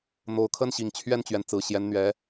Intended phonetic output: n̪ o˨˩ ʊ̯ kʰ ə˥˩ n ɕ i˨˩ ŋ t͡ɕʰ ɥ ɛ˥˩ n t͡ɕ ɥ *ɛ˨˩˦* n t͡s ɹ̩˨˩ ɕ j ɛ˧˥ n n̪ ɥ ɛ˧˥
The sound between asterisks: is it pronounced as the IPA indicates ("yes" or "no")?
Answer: no